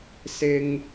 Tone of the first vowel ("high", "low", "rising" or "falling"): high